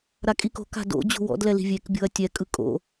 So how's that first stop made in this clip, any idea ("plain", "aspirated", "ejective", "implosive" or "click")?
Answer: ejective